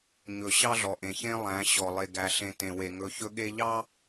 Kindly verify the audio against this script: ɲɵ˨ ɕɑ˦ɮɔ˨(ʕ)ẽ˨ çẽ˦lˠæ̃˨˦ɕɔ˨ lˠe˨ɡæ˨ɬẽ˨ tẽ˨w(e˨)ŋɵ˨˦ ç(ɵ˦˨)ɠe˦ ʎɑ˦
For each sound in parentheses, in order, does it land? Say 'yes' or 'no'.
no, yes, no

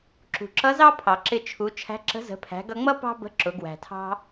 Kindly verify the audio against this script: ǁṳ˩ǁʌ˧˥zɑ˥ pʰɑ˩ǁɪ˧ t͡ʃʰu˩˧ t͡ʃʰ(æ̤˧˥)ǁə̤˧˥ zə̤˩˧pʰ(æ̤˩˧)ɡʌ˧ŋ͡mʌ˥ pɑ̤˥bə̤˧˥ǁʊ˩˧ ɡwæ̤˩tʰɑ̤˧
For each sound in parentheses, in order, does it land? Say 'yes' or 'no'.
yes, yes

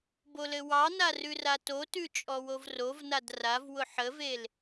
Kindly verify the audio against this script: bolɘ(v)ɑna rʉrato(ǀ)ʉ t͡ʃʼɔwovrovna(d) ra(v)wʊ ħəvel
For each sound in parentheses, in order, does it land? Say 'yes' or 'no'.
no, no, yes, yes

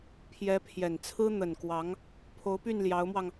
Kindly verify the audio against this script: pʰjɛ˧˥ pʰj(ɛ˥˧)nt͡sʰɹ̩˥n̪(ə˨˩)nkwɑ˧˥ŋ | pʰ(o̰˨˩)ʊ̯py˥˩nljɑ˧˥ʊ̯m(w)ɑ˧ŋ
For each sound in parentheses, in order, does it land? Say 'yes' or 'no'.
no, yes, no, yes

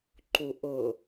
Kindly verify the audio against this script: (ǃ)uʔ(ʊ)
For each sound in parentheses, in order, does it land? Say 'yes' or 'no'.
yes, yes

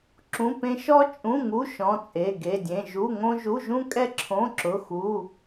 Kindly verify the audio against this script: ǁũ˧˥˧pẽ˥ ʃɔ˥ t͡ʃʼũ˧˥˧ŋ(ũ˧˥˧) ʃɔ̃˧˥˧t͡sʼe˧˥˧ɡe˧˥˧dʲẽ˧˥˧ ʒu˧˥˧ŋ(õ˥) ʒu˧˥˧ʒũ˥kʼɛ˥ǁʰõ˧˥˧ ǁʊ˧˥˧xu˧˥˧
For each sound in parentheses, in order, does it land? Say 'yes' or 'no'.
no, yes

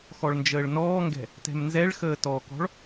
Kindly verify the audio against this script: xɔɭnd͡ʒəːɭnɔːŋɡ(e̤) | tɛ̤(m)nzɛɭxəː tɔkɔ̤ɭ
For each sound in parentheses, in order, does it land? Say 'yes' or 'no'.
no, yes

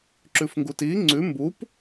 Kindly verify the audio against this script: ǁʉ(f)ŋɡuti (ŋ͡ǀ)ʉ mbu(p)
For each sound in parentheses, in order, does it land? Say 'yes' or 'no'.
yes, yes, yes

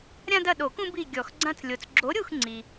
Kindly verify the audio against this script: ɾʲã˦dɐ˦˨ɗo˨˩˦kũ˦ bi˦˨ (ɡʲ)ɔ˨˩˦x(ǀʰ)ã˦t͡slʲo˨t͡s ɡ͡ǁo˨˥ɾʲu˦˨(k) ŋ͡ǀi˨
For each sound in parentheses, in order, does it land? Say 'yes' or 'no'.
yes, no, no

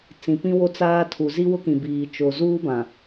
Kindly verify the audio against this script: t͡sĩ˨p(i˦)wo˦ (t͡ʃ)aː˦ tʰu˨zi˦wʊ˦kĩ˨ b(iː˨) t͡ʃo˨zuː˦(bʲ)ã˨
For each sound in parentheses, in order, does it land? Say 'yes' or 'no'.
no, no, yes, no

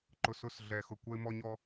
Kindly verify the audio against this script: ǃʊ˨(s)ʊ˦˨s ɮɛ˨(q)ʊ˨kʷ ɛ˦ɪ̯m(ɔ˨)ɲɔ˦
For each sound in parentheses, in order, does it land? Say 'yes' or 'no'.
yes, no, no

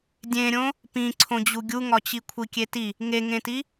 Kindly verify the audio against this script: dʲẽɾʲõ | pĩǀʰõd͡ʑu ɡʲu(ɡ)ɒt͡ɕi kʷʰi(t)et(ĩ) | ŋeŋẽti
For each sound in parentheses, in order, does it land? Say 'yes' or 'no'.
no, no, no

